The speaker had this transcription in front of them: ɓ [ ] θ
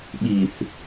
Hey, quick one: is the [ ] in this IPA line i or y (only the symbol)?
i